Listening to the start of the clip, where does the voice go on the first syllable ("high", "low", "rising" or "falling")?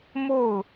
falling